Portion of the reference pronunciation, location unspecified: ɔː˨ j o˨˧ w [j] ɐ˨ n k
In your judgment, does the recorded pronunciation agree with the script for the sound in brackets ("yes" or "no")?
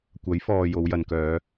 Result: yes